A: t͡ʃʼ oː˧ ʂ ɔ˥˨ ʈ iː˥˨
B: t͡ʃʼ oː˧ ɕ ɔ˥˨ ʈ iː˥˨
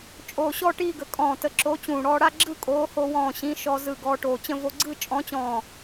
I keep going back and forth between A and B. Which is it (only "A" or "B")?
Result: B